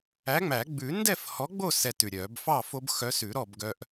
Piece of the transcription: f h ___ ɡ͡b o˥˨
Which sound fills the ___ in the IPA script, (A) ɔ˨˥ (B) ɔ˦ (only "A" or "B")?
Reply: A